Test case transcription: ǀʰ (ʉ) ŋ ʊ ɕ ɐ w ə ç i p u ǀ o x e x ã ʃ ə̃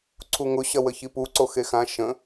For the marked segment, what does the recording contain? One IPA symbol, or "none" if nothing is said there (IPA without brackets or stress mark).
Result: u